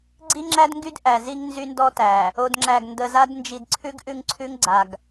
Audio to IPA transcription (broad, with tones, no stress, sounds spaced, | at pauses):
ɡ͡ǀ i˦ ŋ͡ǁ æ˦ d ŋ ɡ y˦ d ʔ æ˨ z i˦ ŋ n z y˦ n d ɔ˦ t æ˨ | o˨ d ŋ͡ǁ æ˨ ɡ n d ə˨ z a˦ d n d͡ʒ i˨ d ǀʰ ʉ˦ ɡ ʔ ʉ˦ ŋ ǀʰ ʉ˦ ŋ ɡ͡ǀ a˨ ɡ